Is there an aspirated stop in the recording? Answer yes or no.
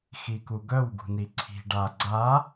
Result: yes